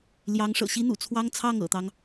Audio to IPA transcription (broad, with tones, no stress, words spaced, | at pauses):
ljɑ˧˥ŋʂɤ̰˨˩ɕi˥ n̪ṵ˨˩t͡sʰwɑ˥ŋt͡sʰɑ˥˩ŋ ɤ̰˨˩t̪ɑ˦ŋ